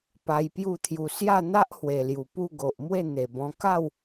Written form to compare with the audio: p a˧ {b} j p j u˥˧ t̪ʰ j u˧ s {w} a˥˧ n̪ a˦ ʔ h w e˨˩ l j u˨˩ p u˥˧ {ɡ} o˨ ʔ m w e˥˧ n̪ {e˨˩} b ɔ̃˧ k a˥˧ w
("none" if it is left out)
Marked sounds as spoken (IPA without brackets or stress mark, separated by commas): none, j, ɡ, e˨˩